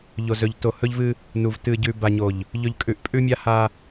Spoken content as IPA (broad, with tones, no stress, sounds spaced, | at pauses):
ʎ o˨ z ɵ˨ ʎ t o˨ h ɵ˦ ʎ v ɨ˦ | n u˨ v t ɨ˨ ɟ ʉ˨ b a˨ ɲ o˨ ʎ | ʎ ɵ˨ ʎ kʼ ʉ˨ ʔ pʼ ʉ˦ mʲ a˦ h a˦